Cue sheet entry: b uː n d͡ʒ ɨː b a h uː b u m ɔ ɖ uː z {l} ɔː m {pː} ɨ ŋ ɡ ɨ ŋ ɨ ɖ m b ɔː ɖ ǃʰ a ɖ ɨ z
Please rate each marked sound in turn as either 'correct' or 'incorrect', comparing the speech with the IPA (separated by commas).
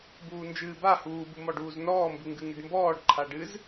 incorrect, incorrect